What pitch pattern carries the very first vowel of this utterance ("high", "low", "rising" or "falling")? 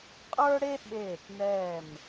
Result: high